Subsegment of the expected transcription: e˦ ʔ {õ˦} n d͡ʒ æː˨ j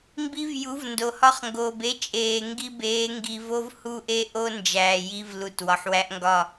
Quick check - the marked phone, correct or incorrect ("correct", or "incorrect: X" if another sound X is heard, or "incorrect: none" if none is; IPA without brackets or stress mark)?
incorrect: o˦